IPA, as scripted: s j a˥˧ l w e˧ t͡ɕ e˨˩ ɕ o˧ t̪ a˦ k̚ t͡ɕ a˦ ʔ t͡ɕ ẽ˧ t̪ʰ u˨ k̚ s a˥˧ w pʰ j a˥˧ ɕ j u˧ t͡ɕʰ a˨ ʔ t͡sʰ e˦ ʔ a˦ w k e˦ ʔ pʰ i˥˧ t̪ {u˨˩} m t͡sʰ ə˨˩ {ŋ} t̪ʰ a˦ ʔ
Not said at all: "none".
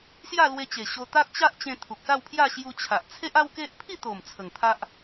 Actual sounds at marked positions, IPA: o˨˩, ŋ

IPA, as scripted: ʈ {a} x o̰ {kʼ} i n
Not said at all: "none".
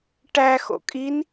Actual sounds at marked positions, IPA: æ, kʼ

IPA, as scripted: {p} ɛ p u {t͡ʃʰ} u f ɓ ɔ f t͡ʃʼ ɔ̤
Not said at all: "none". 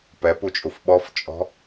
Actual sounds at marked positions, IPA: p, t͡ʃʼ

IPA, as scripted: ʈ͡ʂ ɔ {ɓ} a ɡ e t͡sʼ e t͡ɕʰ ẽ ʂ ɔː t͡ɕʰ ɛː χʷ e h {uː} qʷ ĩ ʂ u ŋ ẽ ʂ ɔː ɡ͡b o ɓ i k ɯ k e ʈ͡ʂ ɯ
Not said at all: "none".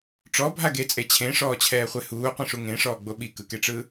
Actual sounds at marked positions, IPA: bʱ, uː

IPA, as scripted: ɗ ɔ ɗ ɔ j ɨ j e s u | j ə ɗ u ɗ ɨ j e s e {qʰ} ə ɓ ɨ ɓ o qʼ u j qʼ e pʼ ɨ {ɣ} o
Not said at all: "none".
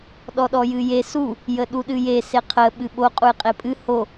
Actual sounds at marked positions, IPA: qʰ, h

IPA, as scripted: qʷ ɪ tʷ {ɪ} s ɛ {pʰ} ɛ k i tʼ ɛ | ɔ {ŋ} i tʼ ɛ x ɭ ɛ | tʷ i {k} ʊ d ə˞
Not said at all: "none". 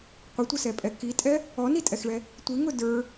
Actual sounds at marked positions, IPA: ə, pʼ, n, ŋ

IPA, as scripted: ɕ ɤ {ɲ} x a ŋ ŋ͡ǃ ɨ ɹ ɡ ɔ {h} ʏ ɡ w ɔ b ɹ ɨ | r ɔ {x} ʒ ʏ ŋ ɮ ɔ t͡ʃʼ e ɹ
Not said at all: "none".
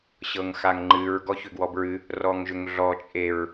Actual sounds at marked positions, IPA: ŋ, ç, ŋ

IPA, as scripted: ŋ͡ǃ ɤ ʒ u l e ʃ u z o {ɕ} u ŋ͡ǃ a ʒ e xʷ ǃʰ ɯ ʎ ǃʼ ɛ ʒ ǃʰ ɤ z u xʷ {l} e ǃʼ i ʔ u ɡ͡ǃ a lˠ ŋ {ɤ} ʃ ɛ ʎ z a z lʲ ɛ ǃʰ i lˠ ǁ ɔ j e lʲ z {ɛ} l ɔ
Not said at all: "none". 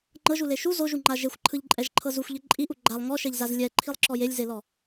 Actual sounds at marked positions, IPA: ʒ, ʎ, ɔ, e

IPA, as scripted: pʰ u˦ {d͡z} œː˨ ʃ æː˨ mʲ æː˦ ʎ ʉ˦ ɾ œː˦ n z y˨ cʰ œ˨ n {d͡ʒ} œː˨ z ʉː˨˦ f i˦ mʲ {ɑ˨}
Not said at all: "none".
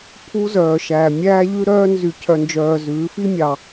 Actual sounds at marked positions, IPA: z, d͡ʒ, ɑ˨

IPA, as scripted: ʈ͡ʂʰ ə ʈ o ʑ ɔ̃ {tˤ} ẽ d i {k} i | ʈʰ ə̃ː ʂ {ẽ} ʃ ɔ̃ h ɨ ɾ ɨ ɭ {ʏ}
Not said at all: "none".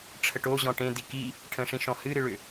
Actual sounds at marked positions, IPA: ʈ, k, ĩ, ʏ

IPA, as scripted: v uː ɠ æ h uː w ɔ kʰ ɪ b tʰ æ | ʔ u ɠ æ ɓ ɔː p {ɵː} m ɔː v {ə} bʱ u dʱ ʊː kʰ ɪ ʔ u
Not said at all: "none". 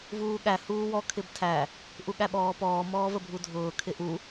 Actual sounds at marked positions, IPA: ɔː, ə

